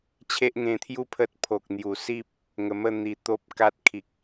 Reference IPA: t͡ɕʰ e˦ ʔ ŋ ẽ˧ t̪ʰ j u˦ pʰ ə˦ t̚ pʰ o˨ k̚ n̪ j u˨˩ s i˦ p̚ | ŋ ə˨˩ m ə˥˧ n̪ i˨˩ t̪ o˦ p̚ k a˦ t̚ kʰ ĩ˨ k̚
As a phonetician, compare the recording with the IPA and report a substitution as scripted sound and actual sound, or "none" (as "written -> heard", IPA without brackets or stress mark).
ĩ˨ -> i˨